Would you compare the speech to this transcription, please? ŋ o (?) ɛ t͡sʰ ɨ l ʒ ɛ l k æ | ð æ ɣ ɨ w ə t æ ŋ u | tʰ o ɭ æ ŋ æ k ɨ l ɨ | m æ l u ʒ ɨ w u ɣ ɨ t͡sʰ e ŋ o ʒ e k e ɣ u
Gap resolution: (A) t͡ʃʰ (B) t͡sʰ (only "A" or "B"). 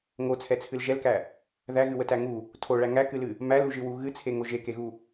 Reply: B